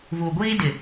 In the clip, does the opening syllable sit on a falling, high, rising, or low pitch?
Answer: low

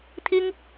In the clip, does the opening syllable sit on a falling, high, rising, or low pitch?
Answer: high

